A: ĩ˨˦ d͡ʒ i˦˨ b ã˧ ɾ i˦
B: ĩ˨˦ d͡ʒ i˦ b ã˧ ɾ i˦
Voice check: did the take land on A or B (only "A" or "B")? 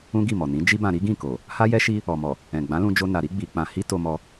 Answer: B